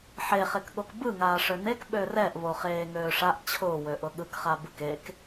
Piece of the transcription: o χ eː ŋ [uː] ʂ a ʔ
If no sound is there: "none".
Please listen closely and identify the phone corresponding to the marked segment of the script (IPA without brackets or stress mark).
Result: øː